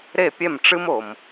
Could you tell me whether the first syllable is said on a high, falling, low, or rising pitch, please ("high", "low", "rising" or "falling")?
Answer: falling